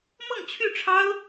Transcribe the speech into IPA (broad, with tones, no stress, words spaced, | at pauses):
mɤ˥˧ŋt͡ɕʰy˥˩ʈ͡ʂʰɑ˥ʊ̯